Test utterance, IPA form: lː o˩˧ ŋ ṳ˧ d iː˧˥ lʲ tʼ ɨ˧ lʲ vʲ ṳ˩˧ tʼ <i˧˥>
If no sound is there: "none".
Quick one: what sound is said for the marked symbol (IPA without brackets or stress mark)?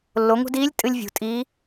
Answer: iː˧˥